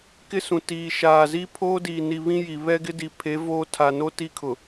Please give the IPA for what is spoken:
k ɪ˦ s ũ˨ t iː˨ ʃ aː˨ z i˦ pʰ oː˦ d iː˨ n i˨ β ĩ˦ j i˨ β ɛ˦ ɡ ɪ˦ d i˨ pʰ e˨˦ v oː˦ tʰ a˨ n o˦ t i˦ kʰ ʊ˨

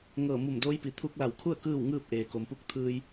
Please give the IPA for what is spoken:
ŋ ɤː˧˩ m u˧˩ m d oː˧˥ j p i˩ t̪ʰ u˧ k̚ l a˧˩ w kʰ u˥˨ ə̯ k ɯː˥˨ w ŋ ɯː˥˨ p̚ ʔ eː˩ k o˩ m p u˥˨ k̚ t̪ʰ ɯː˧ j

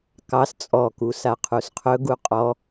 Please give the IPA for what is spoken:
k ɑ s t͡sʼ ɔ k u s a qʰ u s qʰ ɵ ɡ u qʼ ɔ

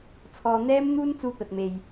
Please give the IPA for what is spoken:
t͡sʰ ɔː˧ n̪ ɛː˥ m n̪ uː˥ n t͡s uː˧ t̪ ɐ˨ t̚ m e˨ j

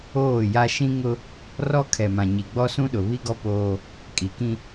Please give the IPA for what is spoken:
oː˦˨ j a˦ ʃ ĩ˦ ŋ ʊ˦ | r ɔ˦ kʰ ɛ˨ m ã˨ ɲ i˨ ɡ͡b ɔ˦ s ũ˦ ɗ ʊ˨ β i˦ ɡ ɔ˦ p oː˦ | kʼ i˨ k ĩ˦

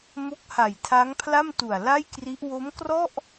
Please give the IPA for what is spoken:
m o˦˥ k̚ h a˨˩ j tʰ a˦˥ ŋ pʰ l a˥˩ m t u˨˩ a̯ l a˥˩ j k r i˦˥ ʔ w o˦˥ m k r ɔ˥˩ ʔ

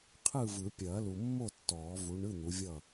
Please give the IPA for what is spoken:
qʰ ɯ˥˨ v ɯ˨˩˦ pʲ ɐː˨˩˦ l u˨ mː o˥˨ tː ɔː˨˩˦ v u˨˦ ɳ ɯ˧˥˧ n̪ u˨˦ vʲ ʌ˥˨

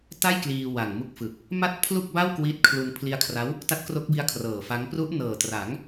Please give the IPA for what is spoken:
t a˥˩ j k l iː˧ w a˨˩ ŋ m u˦˥ k̚ f ɯ˨˩ k̚ | m a˥˩ t̚ pʰ l u˥˩ k̚ b a˥˩ w k w iː˦˥ t̚ kʰ l u˧ n pʰ l i˦˥ a̯ kʰ r a˦˥ w | t a˦˥ t̚ k r o˦˥ k̚ b i˦˥ a̯ kʰ r ɤː˨˩ f a˦˥ ŋ p r u˦˥ ʔ n ɤː˨˩ t r a˩˦ ŋ

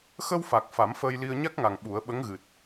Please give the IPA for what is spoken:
x ə˧ w f a˨˩ k̚ f a˨˩˦ m f əː˧ j l i˧ ə̯ ɲ a˦˥ k̚ ŋ a˨˩ ŋ ɓ u˨˩˦ ə̯ ɓ ə˧˥ ŋ ɣ ɨ˨˩ t̚

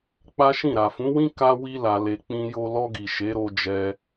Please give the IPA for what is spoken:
k͡p a˦ ʃ ĩ˦˨ ɾ a˨ f ũ˨˦ w ĩ˦ k a˦ w i˦ l a˧ l e˧ k͡p ĩ˧ j o˧ l ɔ˧ ɡ i˨ ʃ e˨˦ ɾ o˧ d͡ʒ ɛ˧

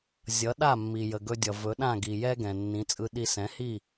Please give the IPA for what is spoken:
zʲ ʌ˩˥ ɗ a˥˩ mː i˩ j ə˩ ɡ ɵ˧ dʲ ʌ˩ v ɵ˩˥ ɗ ã˥˩ ɡ i˩ j ɛ˥ ɡ ɛ̃˩ nː ĩ˩˥ t͡sʼ ɯ˧ ɗ i˧ s ɛ̃˩˥ h i˥˩

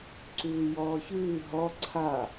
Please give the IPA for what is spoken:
ǀ ʉː j ɔː ç ʉː ɦ ɔ ǀʰ a

